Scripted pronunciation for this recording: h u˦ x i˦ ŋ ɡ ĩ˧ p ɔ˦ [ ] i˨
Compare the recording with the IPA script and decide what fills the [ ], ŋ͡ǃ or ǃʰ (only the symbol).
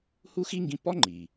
ŋ͡ǃ